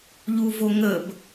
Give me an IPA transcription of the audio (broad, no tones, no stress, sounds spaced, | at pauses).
ʎ u v o ŋ ə b